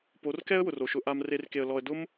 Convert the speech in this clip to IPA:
p o˨˦ r k ɛ˦ ə̯ w ʊ˨ r o˨ ʃ ʊ˧ ʔ a˧ m r e˧ r k e˨ ə̯ l ɔ˨ ə̯ d ʊ˦ m

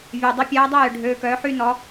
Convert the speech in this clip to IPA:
vʲ œ˩ dˤ ʊ˨˦ pʲ ɐː˨˦ dˤ ɐ˥˨ j ʏ˩ ɖʱ øː˩˧˩ k œː˨˦ ħ y˥˨ n ɔ˨˦

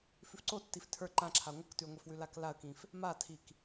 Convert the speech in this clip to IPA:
f ʉ f ǀ o tː i f tʰ ə˞ ǃ ã ǁʰ a ŋʷ ɯ k t ʉ ə̯ ŋʷ ɛ f w ʉ l a k l a ə̯ k ĩ f | m a tʰ i k

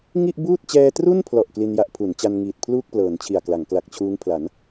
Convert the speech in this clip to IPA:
ŋ i˥˩ ʔ b uː˥˩ t̚ t͡ɕ ɛː˧ t r u˥˩ n pʰ l ɔ˨˩ ʔ k l i˧ n j a˦˥ ʔ pʰ u˩˦ n t͡ɕ a˧ n ŋ iː˨˩ t̚ pʰ l uː˥˩ k̚ p l ɤː˩˦ n t͡ɕʰ i˨˩ a̯ k l a˩˦ ŋ k l a˨˩ k̚ t͡ɕʰ uː˦˥ ŋ pʰ l a˩˦ n

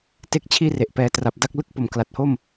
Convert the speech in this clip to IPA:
t e˥˩ k̚ t͡ɕʰ iː˥˩ r e˨˩ ʔ p ɛː˧ t r a˨˩ p̚ d a˥˩ k̚ l ɯ˦˥ k̚ p o˨˩ m k l a˨˩ t̚ h o˥˩ m

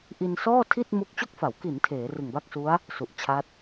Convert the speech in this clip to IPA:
ʔ i˧ n s ɔː˥˩ tʰ i˥˩ t̚ m u˦˥ k̚ t͡ɕ o˥˩ k̚ f a˩˦ w k i˩˦ n tʰ eː˩˦ r ɯ˨˩ ŋ b a˥˩ k̚ s u˦˥ a̯ | s u˨˩ ʔ t͡ɕʰ a˦˥ t̚

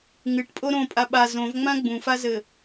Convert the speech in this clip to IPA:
ŋ ɨ ʈ pʼ o ɾ õ pʼ a ɓ a z õ v ŋ͡m ã ɡ͡b ũ f a z ɘ

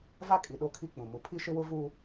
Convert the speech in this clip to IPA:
v a˦ kʼ i˨ ɗ o˦ kʰ i˦ k͡p ũ˨ m u˨ pʰ i˦ ʃ ɪ˦ w ʊ˦ v u˦

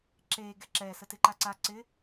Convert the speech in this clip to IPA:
ǁ eː ɡ ɛ ǁ ɛː s ə t ɪ ǃ a ǀ a ǀ ɪ

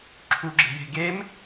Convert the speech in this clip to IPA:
ǁʰ u ɡ͡ǁ e̤ j e̤ ɡ e m

